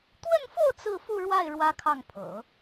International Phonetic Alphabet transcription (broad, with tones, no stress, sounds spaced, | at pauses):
t̪ w ə˥˧ n f o˥˧ ʊ̯ t͡s ɹ̩˥˧ f u˥˧ ɻ w a˥˩ ɪ̯ ɻ w ä˥ kʰ ɑ˥˩ ŋ pʰ ɤ̰˨˩˦